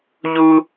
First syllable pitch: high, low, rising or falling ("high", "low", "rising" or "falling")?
high